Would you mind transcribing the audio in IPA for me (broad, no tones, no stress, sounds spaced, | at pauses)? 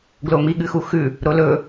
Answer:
ɡ l o m i ɠ ɨ x u x ʉ | ɾ o l ɵ